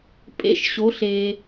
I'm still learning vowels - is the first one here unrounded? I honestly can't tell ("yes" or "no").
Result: yes